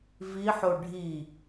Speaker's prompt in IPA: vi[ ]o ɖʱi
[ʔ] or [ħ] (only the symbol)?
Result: ħ